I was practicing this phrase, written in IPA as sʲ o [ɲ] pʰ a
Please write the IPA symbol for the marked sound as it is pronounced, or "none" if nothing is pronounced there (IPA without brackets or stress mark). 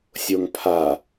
ŋ